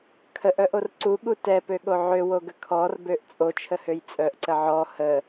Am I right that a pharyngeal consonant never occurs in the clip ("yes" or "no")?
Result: no